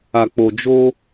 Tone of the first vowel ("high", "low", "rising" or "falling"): low